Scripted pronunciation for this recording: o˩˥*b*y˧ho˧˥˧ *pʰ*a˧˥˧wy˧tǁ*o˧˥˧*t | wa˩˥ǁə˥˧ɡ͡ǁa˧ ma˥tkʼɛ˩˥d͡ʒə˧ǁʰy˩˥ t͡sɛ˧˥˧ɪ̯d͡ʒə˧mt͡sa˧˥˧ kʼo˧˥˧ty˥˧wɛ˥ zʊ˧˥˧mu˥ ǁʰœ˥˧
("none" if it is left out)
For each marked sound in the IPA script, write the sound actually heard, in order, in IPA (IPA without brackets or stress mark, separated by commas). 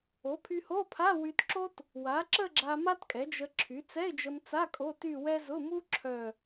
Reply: pʰ, pʰ, o˥